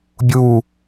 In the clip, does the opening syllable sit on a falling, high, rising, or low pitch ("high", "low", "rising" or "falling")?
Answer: falling